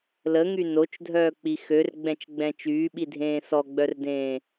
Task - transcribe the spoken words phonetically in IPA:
l ə ŋ y n o t͡ʃ dʱ œː k͡p i x ø r ɡ͡b ɛ̃ t͡ʃ ɡ͡b ɛ̃ t͡ʃ yː ɓ i dʱ ẽː s ɔ ɡ͡b œ r d ẽː

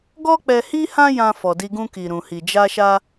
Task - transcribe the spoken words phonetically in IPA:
ɡ ɔ˦ k͡p ɛ˧ h i˦ h ã˦ j ã˧ f ɔ˨ d i˧ ɡ ũ˧ k i˨ ɾ ũ˨ h i˨ d͡ʒ a˧ ʃ a˧

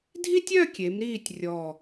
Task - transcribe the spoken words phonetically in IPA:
dʱ i˥ tʲ œ˥˧ kʲ e˩˧ m ɾ iː˧˩ tʲ rʲ ɔ˧˩

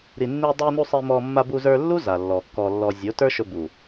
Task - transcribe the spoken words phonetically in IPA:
ɾ i˨ nː i˧ dˤ i˧ n u˧ sˤ i˧ m ɔ˧ mː a˧ b u˧ z ə˞˧ lː u˦ z a˨ lː ɔ˨ kː ɔ˧ lː ɔ˧ zʲ o˨˦ t ə˞˦ ʃ ɵ˧ b u˨

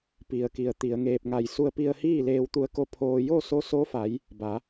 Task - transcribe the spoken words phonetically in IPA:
p i˩ ə̯ k i˩ ə̯ t̪ i˩˧ ə̯ ŋ eː˧ p̚ ŋ a˧˩ j s u˧ ə̯ p i˧ ə̯ h iː˥˨ l eː˧ w t̪ u˧˥ ə̯ k o˧ pʰ oː˧ j o˥˨ s o˧˥ s o˧˥ f a˩˧ j | b a˩˧

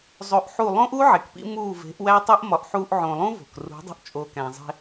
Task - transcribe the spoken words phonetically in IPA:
zˤ o˧ ʔ ħ u˦˨ lˠ õ˦ ʔ u˦ ʕ e˨ k p ḭ˦ m uː˦˨ v e̤˨˦ ʔ w æ˦ tˤ u˦ ʔ m ɒ˨ ʔ ħ uː˧ ʔ ʕ õ˨ lˠ ũ˦ v o̤˨ k r ṳ˨˦ dˤ ṳ˧ ʔ t͡ʃʼ o˨ k æ̃˨ zˤ e̤˧

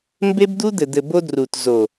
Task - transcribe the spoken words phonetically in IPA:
m b e˦ b d̪ u˦ d̪ ɘ˨ d̪ ɘ˨ b o˧ d r u˨ t z o˨

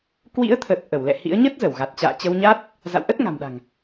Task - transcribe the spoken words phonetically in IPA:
k w ḭ˧˥ ə̯ t̪ʰ ə˨˩ t̚ ʔ ə˧˩ w l ɛ̰˧˨ h ḭ˧˥ ə̯ ɲ ə˦˥ t̚ z ə˧˩ w ɣ a˨˩ t̚ t͡ɕ a̰ː˧˨ t͡ɕ ə˧ w ɲ a˦˥ t̚ | z a̰˧˨ w ʔ ə˦˥ t̚ ŋ a̤˨˩ m ɗ a̤˨˩ ŋ

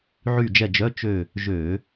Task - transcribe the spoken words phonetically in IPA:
ʕ y˦˨ d͡ʒ ɛ˦˨ d͡ʒ œ˧˥˧ t͡ʃ ø˦˨ | ʒ ø˧˩˧

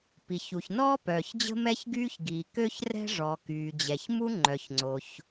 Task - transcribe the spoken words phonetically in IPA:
p i˩ ç u˩ ç n ɔː˥ p œː˩ ç d͡ʑ ə̤˥ m ɛ˥ ç ɡ yː˥ ç ɡ iː˩ k ø˥ ç r ɛ̤˥ ʐ ɔ˩ k yː˩ d͡ʑ ɛ˩ ç m u˥ ŋ͡ǃ œ˩ ç ŋ͡ǀ o˩ ç

